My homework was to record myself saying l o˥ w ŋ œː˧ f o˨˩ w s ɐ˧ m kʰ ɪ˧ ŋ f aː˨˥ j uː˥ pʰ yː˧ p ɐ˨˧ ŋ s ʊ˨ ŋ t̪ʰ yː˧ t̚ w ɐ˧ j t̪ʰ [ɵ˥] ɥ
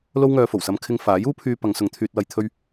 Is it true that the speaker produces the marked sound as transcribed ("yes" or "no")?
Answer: yes